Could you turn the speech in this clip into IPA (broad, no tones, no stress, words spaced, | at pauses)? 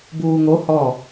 buːŋo hɔ